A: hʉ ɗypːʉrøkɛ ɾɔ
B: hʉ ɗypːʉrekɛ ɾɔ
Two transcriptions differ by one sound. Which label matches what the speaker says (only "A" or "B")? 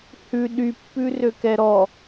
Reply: A